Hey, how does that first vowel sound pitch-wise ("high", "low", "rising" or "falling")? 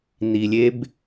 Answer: low